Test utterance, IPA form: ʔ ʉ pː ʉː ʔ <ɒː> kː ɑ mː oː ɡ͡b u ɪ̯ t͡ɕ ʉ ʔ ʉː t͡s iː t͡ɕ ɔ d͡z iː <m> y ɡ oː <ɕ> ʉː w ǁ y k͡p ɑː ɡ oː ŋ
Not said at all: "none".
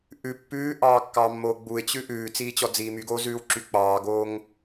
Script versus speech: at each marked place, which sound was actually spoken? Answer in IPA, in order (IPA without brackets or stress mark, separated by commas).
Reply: ɑː, m, z